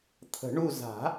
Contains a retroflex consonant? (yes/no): yes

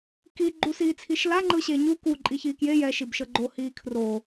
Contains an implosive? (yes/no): no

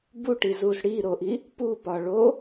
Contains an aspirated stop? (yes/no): no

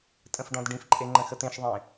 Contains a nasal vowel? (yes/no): yes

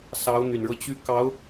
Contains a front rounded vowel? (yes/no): yes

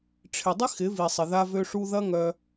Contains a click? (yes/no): no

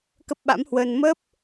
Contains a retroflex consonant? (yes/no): no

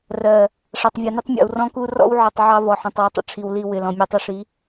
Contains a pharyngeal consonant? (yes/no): yes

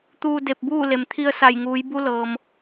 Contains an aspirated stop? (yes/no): yes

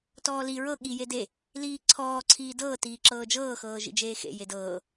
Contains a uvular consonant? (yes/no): no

